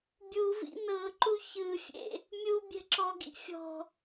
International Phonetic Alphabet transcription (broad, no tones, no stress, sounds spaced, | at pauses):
bʲ u v ḭ n ɤ ǃ u ç ɯ fʲ ḛ | mʲ u bʲ ɛ̤ ǁ ɔ ɡ ḭ fʲ ɔ̤